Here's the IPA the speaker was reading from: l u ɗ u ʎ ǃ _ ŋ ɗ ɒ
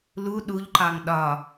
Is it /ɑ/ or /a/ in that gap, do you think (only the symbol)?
ɑ